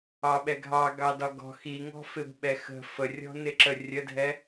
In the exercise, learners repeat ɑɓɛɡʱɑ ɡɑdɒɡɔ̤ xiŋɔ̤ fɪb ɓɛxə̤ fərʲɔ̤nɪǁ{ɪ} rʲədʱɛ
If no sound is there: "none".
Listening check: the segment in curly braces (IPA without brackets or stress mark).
ə